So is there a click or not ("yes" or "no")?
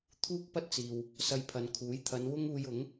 no